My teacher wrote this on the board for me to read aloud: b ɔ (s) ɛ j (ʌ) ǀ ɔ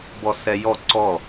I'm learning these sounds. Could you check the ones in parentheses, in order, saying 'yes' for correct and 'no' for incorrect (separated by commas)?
yes, no